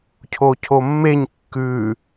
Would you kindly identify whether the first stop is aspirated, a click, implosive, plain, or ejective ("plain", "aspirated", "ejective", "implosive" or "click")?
aspirated